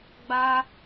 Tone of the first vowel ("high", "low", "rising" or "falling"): high